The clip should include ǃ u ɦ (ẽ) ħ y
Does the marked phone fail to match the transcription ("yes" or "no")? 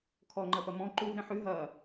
no